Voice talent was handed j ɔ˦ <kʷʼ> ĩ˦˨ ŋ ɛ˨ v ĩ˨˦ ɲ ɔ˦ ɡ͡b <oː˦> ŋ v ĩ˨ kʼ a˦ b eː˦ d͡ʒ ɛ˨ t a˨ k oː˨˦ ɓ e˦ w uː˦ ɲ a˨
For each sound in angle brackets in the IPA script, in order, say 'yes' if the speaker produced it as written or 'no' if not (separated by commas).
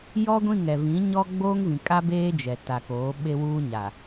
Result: no, yes